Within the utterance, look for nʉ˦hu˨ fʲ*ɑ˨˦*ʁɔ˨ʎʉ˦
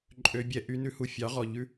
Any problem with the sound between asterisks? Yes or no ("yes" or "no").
no